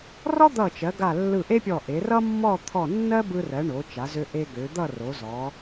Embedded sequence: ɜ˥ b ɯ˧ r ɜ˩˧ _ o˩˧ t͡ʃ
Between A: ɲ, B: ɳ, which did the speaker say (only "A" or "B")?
B